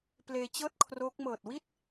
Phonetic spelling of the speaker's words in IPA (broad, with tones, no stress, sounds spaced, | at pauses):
p l eː˧ t͡ɕ ɤː˥˩ t̚ kʰ r o˦˥ k̚ m ɤː˨˩ t̚ w i˥˩ t̚